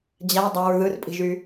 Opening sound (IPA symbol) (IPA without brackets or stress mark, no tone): d͡ʑ